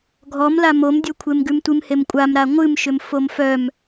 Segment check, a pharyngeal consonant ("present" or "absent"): absent